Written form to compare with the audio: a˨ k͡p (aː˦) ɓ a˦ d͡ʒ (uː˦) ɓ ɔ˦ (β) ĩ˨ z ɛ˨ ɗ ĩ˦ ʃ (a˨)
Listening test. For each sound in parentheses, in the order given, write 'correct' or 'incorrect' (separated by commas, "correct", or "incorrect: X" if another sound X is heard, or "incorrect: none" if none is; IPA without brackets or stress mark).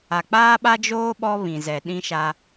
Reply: correct, incorrect: oː˦, correct, incorrect: a˦